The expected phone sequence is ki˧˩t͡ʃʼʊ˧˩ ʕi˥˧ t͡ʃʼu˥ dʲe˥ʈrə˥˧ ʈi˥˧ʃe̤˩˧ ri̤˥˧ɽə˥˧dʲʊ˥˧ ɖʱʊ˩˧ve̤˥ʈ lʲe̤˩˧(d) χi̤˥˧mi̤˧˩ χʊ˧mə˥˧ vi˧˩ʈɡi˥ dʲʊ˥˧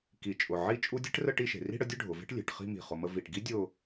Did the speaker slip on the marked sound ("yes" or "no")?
yes